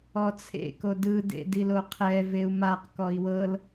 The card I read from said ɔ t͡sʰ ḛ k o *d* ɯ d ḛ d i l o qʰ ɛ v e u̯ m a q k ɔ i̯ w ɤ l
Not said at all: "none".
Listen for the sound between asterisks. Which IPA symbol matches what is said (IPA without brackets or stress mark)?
d